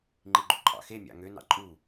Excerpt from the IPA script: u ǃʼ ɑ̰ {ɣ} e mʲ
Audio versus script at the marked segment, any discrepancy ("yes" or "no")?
yes